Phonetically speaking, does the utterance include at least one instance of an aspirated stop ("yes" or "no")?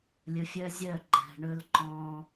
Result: no